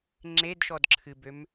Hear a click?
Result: yes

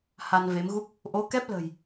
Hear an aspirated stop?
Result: no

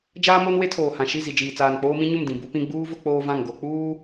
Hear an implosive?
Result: no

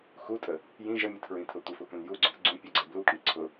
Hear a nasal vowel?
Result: yes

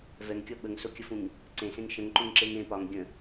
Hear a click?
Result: yes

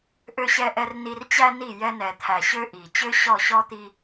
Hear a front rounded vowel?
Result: yes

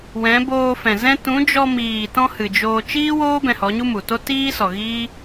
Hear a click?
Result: no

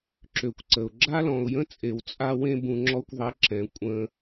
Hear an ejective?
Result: yes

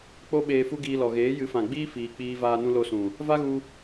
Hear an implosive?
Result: yes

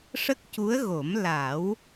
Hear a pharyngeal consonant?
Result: no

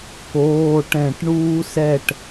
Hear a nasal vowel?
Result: yes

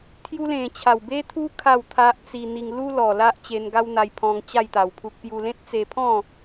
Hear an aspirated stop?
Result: yes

